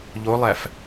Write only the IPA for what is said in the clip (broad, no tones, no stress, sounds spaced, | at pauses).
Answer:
ʎ o lˠ æ f